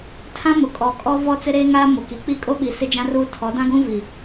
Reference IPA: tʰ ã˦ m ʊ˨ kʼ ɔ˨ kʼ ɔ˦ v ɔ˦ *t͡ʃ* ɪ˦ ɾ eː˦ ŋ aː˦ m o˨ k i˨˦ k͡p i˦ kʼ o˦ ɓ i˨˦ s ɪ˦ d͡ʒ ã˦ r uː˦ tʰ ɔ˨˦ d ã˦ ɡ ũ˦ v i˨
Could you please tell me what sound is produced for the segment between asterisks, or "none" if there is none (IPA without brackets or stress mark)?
t͡s